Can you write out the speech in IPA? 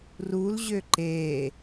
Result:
r u l ʑ ø ǃ e

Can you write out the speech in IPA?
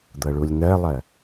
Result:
d̪ ɤ ɭ u lʲ n̪ ɜ lˠ ɜ

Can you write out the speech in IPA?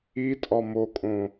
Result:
i tʼ ɒ m o kʼ õ

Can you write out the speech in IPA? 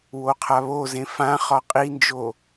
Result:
w o qʰ a β o z ẽ f ã χ ɒ qʼ i n d͡ʒ o

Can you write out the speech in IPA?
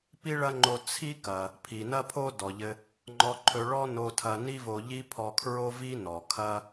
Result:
p i˥ ɭ ɐ˥ ŋ͡ǃ o˧ t͡sʰ i˥ k ɐ˩ | pʰ i˩ n ɐ˥ pʰ o˥ d ɔ˩ ʎ ɘ˧ | ŋ͡ǃ ɔ˧ ǃʰ ɵ˧ ɭ ɔ˥ n o˧ tʰ ɐ˧ n i˥ v o˧ ʎ i˥ pʰ ɔ˧ kʰ ɹ o˥ v i˥ n ɔ˩ kʰ ɐ˥

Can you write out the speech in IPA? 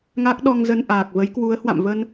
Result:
ŋ a˦˥ k̚ ɗ ɔ˧ ŋ z ə˧ n ʔ aː˨˩ k̚ v ə˨˦ j k w u˨˦ ə̯ h w a̰˧˨ m v ə˧ n

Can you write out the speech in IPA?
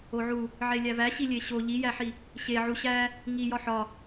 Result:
o ʕ u | ʕ e lʲ æ v æ ɕ i lʲ e ɕ o ʎ i j æ ħ i | ɕ e ʕ u ɕ æ | ŋ i j ɒ ħ ɒ

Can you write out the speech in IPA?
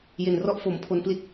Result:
j e˨˩ n r ɔ˦˥ ʔ f o˩˦ m pʰ o˧ n p l i˦˥ t̚

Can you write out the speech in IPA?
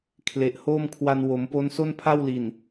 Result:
kʰ l e˨˩ ʔ h oː˥˩ m kʰ w a˧ n w o˩˦ m p o˦˥ n s o˥˩ n pʰ a˥˩ w l i˨˩ n

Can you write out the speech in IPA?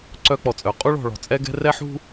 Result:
ǀ œ˦ k͡p ɔ˨ t͡sʼ œ˨˦ qʼ u˦ ɭ ɔ̤˨ ɭ ɔ̤˨ t͡sʼ ɛ˦ ɡ ɛ̤˦ r ɛ˦ ħ ṳ˦

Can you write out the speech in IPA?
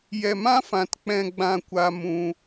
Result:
j ɛ˧ m ã˦ f ã˧ t k͡p ɛ̃˦ ɡ͡b ã˦ kʷ a˦ m ũ˦

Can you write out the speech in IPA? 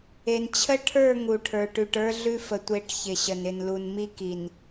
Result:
e˨ n t͡ɕʰ ə˦ ʈʰ ə˞˦˨ ŋ u˨ ʈʰ ə˞˨ ʈ ʉ˨ ʈ ə˞˦ ɮ ʉ˦ f ə˨ tʷ e˨˦ ʈ ç ɪ˨ ɕ ə˨ n ɪ˨ n l u˨ n m i˦ k i˨ n

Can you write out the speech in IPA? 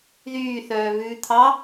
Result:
ð yː θ œː β ʉː t̪ʰ ɑ

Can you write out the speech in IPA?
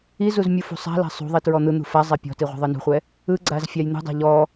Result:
i z u z mʲ u f ṳ sˤ a̤ l a̤ sˤ ṳ ðˤ i t ɹ ɔ n̪ ɯ n̪ ṳ f a zˤ ɛ pʲ ɔ̤ t i ʁʷ ɛ̤ ðˤ ɯ n ṳ χʷ ɛ | ɯ ɡ͡ǀ a z fʲ a j n̪ ṳ dˤ a̤ ʎ ɔ

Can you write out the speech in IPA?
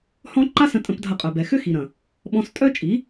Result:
h ɔ̃˦ ǃ a˦ s ə̃˧ tʼ ə̃˧ p dʱ ɐ˧ qʼ œ˨ b ɛ˨ x ʏ˦ x i˨ ɾ ɐ̃˨ | ɓ ɔ̃˧ s tʼ œ˦ t͡ʃʼ i˨˦

